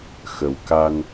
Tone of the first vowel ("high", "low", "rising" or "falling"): low